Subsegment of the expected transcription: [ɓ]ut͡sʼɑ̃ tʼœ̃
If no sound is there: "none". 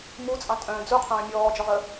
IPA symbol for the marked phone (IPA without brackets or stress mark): m